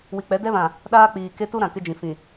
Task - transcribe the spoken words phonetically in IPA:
wi˨k͡pɛ˨˦dɛ˦βã˨ | ɗaː˦k͡piː˨ke˦ tu˦ɾã˨ kɪ˦d͡ʒĩ˨ fĩ˨

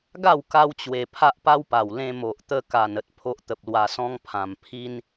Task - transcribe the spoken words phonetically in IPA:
ɡa˥˧w ka˦wt͡ɕwe˧ pʰa˦ʔpa˦wpa˨˩w lẽ˧mo˨ʔt̪ə˧ka˨˩n ə˦t̚ pʰo˦ʔt̪ə˨p̚lwa˧sɔ̃˦ŋ pʰã˨˩m pʰi˧n

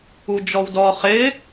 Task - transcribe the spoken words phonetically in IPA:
ud͡ʒɔwdɔ χɪ

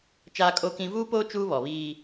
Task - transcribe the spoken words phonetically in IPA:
t͡ʃaː˦kʼo˦kĩ˦ vuː˦poː˦ t͡ʃuː˦βɔ˨βiː˦

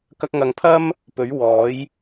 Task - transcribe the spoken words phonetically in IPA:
kɐ˧k̚ŋɐ˨˧ŋpʰɐ˥m | pɵ˨˥ɥ wɔː˨˥j

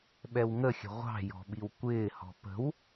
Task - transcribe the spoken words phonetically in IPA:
ɓɛwŋəxʲə̤ ʁʷɑ̤jɔ̤ ɓiwkʷɪːhɔ̤ pə̤w

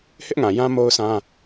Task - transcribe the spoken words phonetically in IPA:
hɪ˦ʔŋã˨jã˦ mo˦ʊ̯sã˦

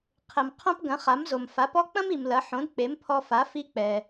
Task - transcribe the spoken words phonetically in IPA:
qʰɘ˩m qʰõ˥pɡɐ̃˩˥χa˩˥mzo˩m fa˩˥pɔ˥ k͡pɐ̃˥m i˩mlɐ˩˥ ħõ˩˥d k͡pe˩˥mpʰɔ˧fa˩˥ fi˧k͡pɛ˩

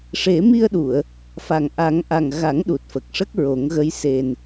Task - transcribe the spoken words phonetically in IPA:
ʂe˨˩˦mi˧ə̯ɗu˨˩˨ə̯ | fa˨˩ŋʔa˨˩˦ŋʔa˨˩ŋɣa˨˩˦ŋ ɗu˨˩t̚fə˨˩k̚ʂə˦˥k̚ ɹo˨˩˦ŋɣə˧˥j se˨˩n

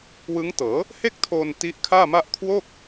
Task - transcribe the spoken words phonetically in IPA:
wɯ˦˥ŋtɤː˩˦ | he˥˩k̚tʰoː˧n ti˦˥ʔkʰaː˥˩ma˥˩ʔ kʰwo˥˩k̚

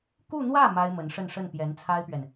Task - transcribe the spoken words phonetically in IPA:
ku˥˧n̪wä˥˩ ma˥ɪ̯mə˧˥nʂə˥˧nʂə˥˩n pjɛ˧˥nt͡sʰa˥ɪ̯pɥɛ˨n

